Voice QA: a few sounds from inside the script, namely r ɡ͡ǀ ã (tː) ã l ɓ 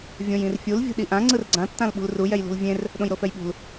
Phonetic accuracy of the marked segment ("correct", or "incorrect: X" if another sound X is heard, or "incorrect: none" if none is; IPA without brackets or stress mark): correct